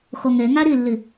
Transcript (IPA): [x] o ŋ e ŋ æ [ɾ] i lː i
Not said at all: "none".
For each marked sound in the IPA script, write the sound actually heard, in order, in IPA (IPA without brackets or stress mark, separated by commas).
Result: x, ɾ